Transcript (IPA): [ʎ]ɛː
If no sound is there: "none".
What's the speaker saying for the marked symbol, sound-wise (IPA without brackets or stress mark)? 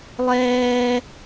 lˠ